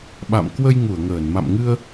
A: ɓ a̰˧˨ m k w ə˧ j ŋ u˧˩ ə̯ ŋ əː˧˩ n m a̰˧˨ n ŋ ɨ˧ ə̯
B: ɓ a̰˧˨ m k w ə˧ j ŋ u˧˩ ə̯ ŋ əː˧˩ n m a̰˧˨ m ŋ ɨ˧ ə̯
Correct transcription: B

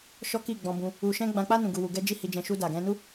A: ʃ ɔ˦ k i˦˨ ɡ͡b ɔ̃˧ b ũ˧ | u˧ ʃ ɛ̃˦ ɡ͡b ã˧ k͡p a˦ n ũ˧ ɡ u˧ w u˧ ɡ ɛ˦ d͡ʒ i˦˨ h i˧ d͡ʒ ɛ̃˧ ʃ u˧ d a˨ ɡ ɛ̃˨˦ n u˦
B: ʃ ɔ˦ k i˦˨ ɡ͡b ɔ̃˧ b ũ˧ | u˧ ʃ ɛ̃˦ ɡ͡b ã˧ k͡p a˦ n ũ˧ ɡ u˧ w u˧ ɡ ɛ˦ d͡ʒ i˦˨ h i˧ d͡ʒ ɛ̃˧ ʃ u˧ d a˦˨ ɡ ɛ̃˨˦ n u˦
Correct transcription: A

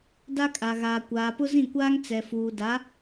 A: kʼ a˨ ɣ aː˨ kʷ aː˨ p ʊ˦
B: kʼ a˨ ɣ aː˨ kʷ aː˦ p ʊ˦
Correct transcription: A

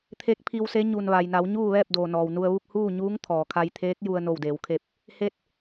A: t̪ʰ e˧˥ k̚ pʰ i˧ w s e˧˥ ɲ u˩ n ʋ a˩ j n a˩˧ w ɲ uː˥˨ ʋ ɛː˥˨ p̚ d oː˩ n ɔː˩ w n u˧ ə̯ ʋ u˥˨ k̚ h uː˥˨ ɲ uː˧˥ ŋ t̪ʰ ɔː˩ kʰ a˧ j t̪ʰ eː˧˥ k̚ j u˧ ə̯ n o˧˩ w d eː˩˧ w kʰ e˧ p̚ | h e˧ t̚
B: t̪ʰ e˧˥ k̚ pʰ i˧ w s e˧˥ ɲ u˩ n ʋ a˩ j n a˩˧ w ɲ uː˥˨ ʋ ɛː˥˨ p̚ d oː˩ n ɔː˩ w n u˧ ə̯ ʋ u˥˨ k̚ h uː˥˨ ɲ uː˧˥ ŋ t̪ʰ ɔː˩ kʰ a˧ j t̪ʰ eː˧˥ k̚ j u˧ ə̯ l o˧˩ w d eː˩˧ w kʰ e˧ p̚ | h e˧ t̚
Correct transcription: A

